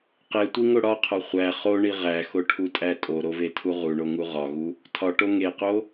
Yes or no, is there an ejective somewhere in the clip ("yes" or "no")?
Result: yes